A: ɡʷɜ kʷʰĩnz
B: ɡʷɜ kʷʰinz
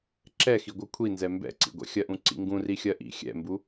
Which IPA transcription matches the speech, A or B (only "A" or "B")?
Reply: B